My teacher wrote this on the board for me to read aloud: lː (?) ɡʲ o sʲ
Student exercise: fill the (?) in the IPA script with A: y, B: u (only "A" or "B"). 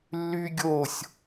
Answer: A